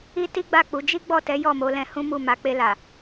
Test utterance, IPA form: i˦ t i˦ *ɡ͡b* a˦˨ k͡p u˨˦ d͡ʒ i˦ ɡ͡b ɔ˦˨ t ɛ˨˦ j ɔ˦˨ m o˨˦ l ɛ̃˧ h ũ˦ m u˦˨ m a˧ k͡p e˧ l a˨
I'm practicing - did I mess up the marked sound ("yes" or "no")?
no